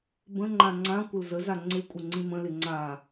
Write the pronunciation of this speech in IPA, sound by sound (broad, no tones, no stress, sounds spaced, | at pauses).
b ə̃ ŋ͡ǃ ã ŋ͡ǀ ã kʷ ə l z ə z a ŋ͡ǀ ɪ kʷʼ ə ŋ͡ǀ ĩ m ə̃ l ɪ ŋ͡ǀ a